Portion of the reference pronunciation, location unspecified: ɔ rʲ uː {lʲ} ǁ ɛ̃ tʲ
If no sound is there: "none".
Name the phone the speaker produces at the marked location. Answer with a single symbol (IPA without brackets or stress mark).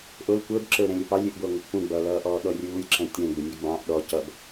lʲ